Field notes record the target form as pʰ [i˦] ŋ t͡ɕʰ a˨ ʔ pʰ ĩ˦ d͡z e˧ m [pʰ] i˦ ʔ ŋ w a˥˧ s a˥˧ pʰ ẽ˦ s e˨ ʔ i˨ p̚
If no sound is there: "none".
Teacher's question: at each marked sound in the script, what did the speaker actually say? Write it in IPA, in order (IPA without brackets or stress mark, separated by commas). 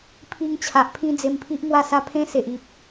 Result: i˦, pʰ